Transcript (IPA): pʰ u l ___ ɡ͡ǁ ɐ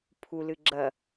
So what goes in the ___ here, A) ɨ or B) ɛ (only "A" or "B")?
A